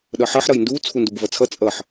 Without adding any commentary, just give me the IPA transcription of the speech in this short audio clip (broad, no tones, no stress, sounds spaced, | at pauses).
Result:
ɗ ʌ ħ ʌ ħ ɾ ʌ j n d u t͡sʰ u n d u b v ʌ t͡sʰ ʌ t͡sʼ ʌ ħ